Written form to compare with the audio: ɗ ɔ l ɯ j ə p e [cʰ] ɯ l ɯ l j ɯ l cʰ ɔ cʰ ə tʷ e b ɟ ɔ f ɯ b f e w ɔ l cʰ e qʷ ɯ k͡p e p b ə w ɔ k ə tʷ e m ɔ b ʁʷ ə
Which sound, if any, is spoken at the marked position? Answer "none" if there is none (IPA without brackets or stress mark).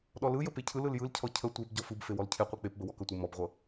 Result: cʰ